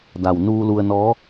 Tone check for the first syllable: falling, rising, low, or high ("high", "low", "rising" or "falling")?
low